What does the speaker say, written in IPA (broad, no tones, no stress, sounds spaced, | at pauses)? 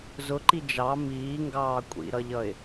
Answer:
z ʊ ǃ i d͡ʒ ɑ m iː ŋ ɡ ɑː kʷʼ ḭ ɾ ʌ ʎ ʌ ɪ̯